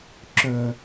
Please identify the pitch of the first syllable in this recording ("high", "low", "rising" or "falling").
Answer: low